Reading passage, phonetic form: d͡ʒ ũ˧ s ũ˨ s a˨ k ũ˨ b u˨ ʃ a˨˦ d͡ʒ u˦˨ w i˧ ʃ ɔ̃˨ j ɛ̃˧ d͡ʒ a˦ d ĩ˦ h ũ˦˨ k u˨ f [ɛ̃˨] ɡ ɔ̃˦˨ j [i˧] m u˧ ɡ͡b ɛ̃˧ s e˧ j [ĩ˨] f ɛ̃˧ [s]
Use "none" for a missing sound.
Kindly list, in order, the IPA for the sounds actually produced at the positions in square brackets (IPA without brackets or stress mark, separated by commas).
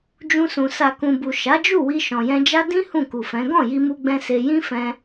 ɛ̃˨˦, i˧, ĩ˦, none